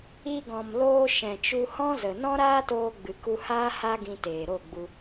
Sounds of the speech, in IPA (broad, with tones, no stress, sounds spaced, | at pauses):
i˧ ɡ ɔ̃˨ m l oː˧ ʃ ɛ̃˨ t͡ʃ u˧ h ɔ̃˦ z ə˨ n ɔ̃˦ ɾ aː˦ t oː˧ ɡ͡b ɨ˨ k u˧ h aː˦ h a˦ ɡ ĩ˧ t eː˨ ɾ o˦˨ ɡ͡b u˧